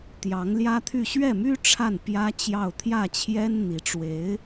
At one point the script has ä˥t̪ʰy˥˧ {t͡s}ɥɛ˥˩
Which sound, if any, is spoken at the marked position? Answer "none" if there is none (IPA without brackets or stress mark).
ɕ